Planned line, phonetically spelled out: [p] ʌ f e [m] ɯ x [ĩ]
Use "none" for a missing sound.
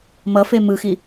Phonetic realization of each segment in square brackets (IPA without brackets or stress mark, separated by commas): m, m, i